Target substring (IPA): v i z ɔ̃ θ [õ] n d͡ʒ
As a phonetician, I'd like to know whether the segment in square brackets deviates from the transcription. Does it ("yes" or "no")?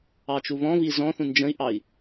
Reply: yes